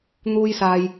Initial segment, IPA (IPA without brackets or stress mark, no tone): n̪